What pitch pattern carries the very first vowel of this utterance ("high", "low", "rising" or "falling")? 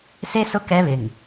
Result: high